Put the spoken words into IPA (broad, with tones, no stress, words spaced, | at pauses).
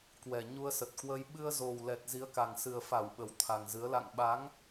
kwɛ˨˩ɲu˧ə̯sə˨˩t̚kwə˧j ɓɨ˧ə̯zo˨˩wlɛ˨˩t̚ zi˨˦ə̯ka˨˩ŋsɨ˨˩ə̯fa˧˩w ɓə˨˩wt̪ʰa˨˩ŋzɨ˨˦ə̯ la̰˧˨ŋɓa˨˦ŋ